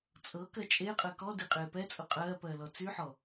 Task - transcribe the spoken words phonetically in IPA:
t͡sʼɤkɜ t͡ʃʼeqʼɜ kɔdiqʼeː pɛt͡sʼʊ qʼɜːpɜːlɔ t͡syħɔ

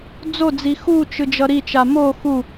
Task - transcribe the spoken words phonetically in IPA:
d͡zod͡zi xut͡ʃɯ d͡ʒʌɾit͡ʃa mo xu

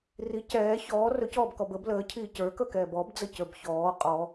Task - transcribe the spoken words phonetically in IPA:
ri cɛː çɔː rɵcɔːbkɔb əb ləːcʰiː cə˞kɵkɛːb ɔbd͡zəcə˞b çɔː qʼɔ

